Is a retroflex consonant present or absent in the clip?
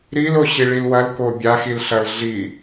present